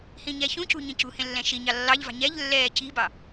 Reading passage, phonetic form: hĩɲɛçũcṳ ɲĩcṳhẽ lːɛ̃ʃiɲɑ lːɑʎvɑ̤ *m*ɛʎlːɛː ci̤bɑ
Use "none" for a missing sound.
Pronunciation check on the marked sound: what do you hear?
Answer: ɲ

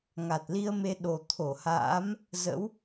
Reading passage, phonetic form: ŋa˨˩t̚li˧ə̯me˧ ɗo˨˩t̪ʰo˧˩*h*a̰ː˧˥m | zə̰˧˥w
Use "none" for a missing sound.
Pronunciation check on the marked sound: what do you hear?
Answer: h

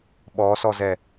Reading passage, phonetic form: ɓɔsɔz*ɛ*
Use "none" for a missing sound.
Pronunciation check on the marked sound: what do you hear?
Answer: ɛ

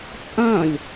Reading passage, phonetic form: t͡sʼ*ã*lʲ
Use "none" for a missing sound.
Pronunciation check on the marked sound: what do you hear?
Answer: ã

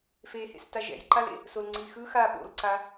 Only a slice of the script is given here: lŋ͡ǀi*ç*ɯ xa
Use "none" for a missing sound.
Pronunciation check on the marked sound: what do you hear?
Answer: x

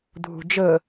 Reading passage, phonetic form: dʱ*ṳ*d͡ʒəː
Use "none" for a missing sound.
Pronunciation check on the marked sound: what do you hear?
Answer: ṳ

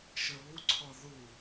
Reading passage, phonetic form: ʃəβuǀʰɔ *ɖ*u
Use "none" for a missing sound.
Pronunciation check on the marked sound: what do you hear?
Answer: ð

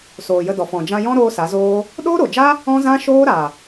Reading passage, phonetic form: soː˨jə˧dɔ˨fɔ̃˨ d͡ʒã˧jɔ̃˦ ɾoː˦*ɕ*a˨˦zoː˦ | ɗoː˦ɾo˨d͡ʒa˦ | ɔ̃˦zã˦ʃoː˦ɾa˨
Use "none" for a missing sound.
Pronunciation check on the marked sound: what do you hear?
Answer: s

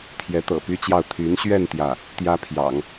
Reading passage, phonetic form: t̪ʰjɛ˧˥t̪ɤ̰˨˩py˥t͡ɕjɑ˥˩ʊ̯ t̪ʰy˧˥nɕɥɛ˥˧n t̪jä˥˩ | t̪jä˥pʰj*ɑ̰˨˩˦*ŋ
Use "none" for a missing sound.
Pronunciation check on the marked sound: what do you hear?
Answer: ɑ̰˨˩˦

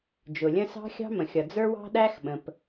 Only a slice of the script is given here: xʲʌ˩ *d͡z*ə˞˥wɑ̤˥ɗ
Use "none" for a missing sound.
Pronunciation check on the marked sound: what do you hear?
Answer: d͡z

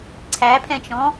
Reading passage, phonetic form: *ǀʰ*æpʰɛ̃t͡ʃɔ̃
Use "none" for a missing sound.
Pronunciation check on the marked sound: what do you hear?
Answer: ǀʰ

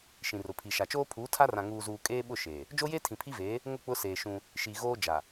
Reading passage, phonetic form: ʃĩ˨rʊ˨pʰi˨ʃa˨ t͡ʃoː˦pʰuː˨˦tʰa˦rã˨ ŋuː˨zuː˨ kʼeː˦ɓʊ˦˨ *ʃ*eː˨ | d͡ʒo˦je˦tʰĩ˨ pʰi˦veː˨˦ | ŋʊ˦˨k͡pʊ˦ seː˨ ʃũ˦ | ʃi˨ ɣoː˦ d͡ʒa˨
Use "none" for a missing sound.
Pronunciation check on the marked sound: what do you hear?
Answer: ʃ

